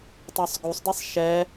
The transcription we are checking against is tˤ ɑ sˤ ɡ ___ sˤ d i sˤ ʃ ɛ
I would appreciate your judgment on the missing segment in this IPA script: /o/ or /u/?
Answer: u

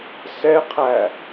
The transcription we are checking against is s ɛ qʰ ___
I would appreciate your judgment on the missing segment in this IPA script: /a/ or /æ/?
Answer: æ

